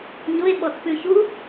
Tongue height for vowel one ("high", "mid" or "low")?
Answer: high